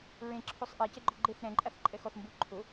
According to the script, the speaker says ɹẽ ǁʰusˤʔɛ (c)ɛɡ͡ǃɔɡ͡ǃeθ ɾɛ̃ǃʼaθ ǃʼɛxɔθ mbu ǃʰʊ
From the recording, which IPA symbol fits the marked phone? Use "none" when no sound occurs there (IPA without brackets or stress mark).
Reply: c